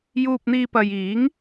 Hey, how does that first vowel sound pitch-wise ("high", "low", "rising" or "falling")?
low